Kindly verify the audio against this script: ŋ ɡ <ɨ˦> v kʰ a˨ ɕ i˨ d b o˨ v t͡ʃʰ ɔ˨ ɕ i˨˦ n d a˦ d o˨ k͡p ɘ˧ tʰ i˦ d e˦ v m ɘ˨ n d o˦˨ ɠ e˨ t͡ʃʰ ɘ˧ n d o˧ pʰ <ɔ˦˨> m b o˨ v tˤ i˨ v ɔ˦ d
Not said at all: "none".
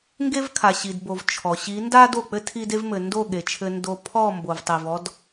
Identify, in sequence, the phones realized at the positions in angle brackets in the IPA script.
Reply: e˦, ɔ˦˨

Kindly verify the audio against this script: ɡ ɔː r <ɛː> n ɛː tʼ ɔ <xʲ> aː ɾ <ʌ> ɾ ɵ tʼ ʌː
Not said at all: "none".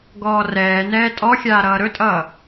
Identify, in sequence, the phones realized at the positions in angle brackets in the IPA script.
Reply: ɛː, xʲ, ʌː

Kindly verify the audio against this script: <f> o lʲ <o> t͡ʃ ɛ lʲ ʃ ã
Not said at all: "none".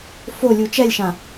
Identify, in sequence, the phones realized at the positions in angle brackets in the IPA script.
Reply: f, u

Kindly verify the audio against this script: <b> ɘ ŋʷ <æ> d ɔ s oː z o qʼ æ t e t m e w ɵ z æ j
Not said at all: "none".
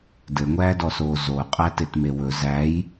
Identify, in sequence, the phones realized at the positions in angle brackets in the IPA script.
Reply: d, æː

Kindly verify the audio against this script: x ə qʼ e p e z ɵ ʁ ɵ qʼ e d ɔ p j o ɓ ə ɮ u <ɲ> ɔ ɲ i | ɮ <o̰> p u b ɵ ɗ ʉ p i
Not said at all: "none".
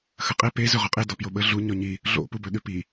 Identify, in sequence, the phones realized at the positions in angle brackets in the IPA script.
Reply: ɲ, o̰

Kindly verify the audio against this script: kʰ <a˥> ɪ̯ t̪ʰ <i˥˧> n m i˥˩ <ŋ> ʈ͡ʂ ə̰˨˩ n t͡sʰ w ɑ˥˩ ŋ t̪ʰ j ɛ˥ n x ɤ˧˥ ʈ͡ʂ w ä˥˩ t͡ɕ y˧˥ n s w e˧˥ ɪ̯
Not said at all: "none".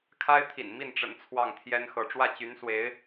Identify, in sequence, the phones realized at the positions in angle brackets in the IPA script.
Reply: a˥, ḭ˨˩, n

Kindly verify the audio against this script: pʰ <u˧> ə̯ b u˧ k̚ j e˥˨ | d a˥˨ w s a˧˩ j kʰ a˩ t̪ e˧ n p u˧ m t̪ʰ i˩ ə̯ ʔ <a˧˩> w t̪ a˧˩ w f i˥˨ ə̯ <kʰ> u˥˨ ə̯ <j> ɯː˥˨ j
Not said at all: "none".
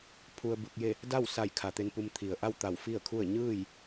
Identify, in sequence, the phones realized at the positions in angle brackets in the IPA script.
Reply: u˧, a˥˨, kʰ, ɲ

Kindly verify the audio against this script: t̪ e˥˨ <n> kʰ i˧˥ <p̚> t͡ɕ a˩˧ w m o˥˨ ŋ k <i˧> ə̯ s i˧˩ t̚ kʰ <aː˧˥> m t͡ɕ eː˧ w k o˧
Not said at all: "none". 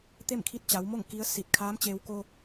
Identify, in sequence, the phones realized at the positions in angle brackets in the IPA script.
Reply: m, t̚, i˧˥, aː˧˥

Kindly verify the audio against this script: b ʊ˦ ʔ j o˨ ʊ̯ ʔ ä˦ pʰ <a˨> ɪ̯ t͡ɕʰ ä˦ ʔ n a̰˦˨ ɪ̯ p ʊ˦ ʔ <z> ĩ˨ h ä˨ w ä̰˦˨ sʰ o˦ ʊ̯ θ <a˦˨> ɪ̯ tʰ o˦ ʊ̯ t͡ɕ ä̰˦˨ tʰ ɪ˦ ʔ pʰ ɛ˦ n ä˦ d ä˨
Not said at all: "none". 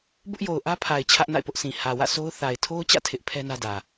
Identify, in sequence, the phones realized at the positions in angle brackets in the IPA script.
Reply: a˨, s, a˨

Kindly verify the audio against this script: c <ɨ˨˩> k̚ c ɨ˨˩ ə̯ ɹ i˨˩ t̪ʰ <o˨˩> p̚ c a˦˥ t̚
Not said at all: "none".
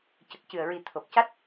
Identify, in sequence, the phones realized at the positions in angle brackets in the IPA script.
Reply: ə˨˩, o˨˩

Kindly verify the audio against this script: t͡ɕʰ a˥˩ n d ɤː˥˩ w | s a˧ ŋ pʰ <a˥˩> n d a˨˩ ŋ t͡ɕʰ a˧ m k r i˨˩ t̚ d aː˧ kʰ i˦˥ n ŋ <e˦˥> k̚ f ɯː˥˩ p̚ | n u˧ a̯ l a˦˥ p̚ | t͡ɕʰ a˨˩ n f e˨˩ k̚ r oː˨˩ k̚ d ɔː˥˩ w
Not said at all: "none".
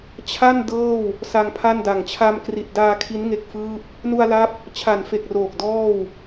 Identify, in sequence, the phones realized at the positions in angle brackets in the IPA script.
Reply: a˥˩, e˦˥

